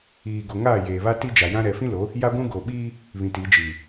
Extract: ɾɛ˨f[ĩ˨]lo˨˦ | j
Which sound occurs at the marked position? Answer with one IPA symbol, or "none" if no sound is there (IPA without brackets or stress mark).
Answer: ĩ˦